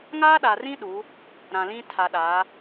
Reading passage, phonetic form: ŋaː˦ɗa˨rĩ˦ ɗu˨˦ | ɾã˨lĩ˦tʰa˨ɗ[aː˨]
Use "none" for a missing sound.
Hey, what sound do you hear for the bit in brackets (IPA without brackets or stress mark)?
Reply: aː˨˦